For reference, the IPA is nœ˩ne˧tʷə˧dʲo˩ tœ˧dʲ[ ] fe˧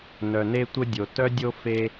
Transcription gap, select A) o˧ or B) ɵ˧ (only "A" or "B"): A